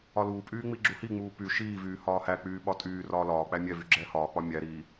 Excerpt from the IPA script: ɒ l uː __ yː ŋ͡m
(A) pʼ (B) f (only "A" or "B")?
A